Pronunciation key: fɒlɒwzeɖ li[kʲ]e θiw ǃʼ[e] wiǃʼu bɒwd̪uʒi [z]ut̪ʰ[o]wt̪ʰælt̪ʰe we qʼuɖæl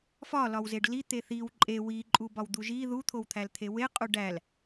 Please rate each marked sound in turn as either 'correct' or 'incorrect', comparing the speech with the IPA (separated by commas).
incorrect, correct, incorrect, correct